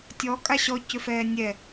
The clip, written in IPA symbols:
tʲɔ kʼaɕɔ cʏfɛːnʲɛ

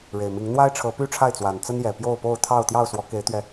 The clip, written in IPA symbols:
ɻe˨˩ɪ̯mi˨˦ŋ n̪wa˦ɪ̯ʈ͡ʂʰɤ˨˦ py˦ʈ͡ʂʰa˥˨ɪ̯ t͡swa˨˩nt͡sə˦njɛ˨˩ pjo˥˨ʊ̯po˥˨ʊ̯ t̪ʰɑ˥˨ʊ̯ t̪jɑ˥˨ʊ̯swɔ˨˦ke˨˦ɪ̯t̪ɥɛ˨˦

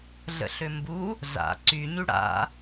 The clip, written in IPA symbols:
ɮə̰ɬømbu | za̰ ǀyɲy ɽa̰

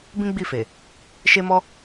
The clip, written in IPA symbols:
bĩ˦ɡ͡bi˦˨fe˨ | ʃe˧mɔ˧

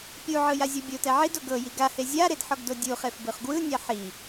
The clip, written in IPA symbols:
pʲuʕɯ jazʲɔbʲotɛ ʕido ɡɤji ɡahe zʲaɾed ħɔɡdodʲuχef bɯχɡwɯnʲa ħi

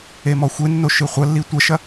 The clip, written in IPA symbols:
emɔxʷenːo ʃɨχʷɐlːi tʷɐʃɐ

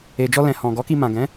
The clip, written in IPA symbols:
e˨d͡ʒɔ˧lɛ̃˨ hɔ̃˨ ɡɔ˨˦ki˧mã˨ ɡɛ̃˨˦

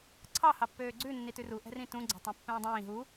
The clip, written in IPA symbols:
ǀʰɑ hɑpːøːɡ͡ǀʉ nːitʉru ʔɛ̤rĩtũ ɡ͡ǀæ̤tˤɛ̃pːɛ̃ːdˤĩː ɦu

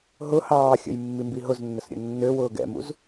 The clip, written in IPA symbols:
ɦʊ hɑːxʲə̰j mːimbiɦʊznːəs ɾʲə̰nːøwʊː ɡɛ̰mṵz

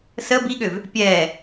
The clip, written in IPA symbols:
sə biɠøv | pʲɛː

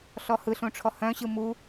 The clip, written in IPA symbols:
ɬɔhɯɬũ ʈ͡ʂʰɔhœ̃ɕɯ mu

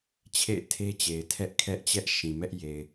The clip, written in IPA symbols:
t͡ɕʰḛ˦˨ɪ̯tʰe˦t͡ɕe˨ɪ̯ tʰɛ˦ʔkʰɛ˦ʔt͡ɕɛ˦ʔ ʃĩ˨mɛ˦ʔ je˨ɪ̯

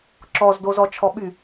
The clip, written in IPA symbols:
ǁɔzdo zɔt͡ʃʰɔɓy

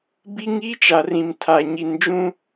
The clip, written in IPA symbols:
bi˦ŋi˦ t͡ʃa˨rĩ˨mtʰa˨ ɲi˨nd͡ʒũ˦

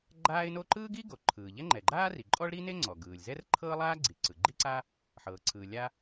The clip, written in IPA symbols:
ɡ͡ǃaː˥ɪ̯no˥ ǃɯː˥ɡi˥ ɡo˩ǃʰɯː˩ʎɛ˥ ŋ͡ǃɛ˩ɡ͡ǃaː˥ ri˩ǃʼɔ˥ɭɾi˥ne˥ ŋ͡ǀɔ˩ɡɯː˩lʲzɛ˥r ǃʰɤː˥lˠaː˥ɡ͡ǀi˩ ǀɯ˩ɡ͡ǃi˥ǀa˥ | ħɤː˩ǀʰɯː˩ lʲa˥

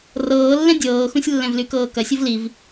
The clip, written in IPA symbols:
rɤːlːɛ̃ dʲɤːxũsʲlːɛ̃vly kɤːkɐ sʲɤvliv

